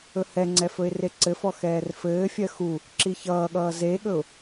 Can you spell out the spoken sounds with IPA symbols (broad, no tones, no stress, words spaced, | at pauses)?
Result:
ɵhɛŋ͡ǀɛ fɵɪ̯reǀɘfɔ xɛːrfɘːfʲɜ xu | ǁiçʌːɠʌː zeɠɵʊ̯